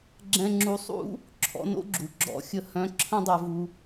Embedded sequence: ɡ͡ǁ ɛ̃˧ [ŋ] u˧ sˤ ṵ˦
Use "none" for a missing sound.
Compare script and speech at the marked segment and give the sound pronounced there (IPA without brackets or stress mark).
ŋ͡ǁ